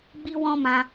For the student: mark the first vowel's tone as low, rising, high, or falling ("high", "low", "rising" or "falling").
high